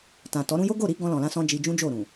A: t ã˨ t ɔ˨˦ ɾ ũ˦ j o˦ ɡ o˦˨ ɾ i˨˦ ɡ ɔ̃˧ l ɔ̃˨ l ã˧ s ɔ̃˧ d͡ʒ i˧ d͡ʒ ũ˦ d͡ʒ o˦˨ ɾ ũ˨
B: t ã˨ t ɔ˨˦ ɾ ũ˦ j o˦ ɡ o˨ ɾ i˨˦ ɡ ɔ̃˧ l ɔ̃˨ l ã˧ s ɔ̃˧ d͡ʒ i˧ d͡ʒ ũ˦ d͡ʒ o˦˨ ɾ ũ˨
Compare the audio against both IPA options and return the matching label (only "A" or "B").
A